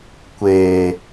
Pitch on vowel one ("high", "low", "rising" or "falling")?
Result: low